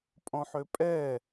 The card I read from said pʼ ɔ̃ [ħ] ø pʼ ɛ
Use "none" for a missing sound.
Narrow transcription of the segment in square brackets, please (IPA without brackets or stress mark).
ħ